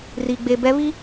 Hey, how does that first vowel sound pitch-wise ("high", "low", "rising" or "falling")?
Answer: low